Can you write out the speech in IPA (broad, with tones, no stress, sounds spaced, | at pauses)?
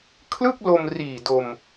kʰ l ɯ˥˩ k̚ l o˧ m r iː˨˩ d o˧ m